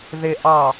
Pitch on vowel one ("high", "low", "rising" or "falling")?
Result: low